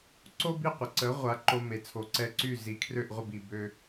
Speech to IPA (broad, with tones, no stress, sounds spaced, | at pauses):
ǀ o˥ b i˥˩ qʷ ə˩ ǀ ə˩˥ ʁʷ a˩˥ ǃ o˧ m e˩ t͡sʰ o˩˥ ǀ ɛ˥˩ ǀ y˥˩ z i˩˥ kʰ r ø˥˩ ʔ ʁʷ ə˥˩ b i˩ b ø˧